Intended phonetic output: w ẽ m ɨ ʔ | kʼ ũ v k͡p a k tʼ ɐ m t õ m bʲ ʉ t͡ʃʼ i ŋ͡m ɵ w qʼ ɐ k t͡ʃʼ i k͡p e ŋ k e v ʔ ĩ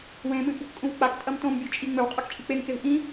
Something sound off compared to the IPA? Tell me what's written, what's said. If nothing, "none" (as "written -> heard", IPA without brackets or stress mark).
none